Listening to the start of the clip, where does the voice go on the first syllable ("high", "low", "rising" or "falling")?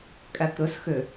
low